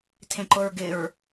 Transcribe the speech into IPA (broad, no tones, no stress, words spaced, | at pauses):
tʰẽǃʊɹɡɪɹ